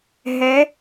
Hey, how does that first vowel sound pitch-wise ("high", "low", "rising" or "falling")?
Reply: rising